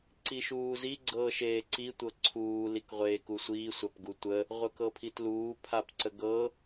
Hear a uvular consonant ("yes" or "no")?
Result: yes